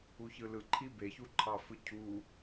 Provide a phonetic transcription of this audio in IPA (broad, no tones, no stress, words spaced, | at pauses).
uçɯlɯǃʰi beçuǃʰɑ fɯcʰu